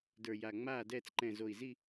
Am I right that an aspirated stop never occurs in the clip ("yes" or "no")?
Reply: yes